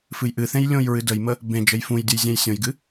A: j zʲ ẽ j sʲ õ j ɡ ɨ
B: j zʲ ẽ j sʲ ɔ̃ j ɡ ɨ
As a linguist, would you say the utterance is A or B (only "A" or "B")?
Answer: A